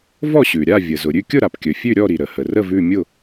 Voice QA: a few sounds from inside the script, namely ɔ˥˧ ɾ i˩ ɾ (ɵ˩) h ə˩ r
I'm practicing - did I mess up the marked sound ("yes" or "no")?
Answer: yes